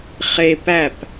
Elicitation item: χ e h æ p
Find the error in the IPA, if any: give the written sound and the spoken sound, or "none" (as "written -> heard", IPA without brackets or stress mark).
h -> p